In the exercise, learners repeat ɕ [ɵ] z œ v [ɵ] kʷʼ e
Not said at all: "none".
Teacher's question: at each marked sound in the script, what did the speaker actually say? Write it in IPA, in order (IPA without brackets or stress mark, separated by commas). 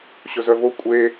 ɵ, o